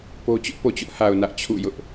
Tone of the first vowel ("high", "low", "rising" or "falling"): high